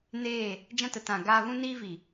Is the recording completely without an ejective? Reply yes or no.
yes